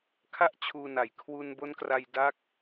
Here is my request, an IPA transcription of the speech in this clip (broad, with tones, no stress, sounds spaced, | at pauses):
kʰ a˥˩ ʔ t͡ɕʰ uː˧ n a˨˩ j kʰ w u˧ n b o˦˥ n k r a˧ j d a˦˥ k̚